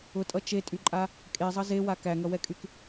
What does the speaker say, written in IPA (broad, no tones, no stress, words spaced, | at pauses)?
ʊtʼʌ t͡ʃetʼyǃʼa | kʼezˤʌ zewa kæŋʌwɛkʼyk